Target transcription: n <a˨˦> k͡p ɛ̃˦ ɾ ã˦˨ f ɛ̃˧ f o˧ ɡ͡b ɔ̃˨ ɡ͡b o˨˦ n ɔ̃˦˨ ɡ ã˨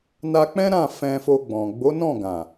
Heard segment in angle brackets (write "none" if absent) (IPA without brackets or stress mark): a˧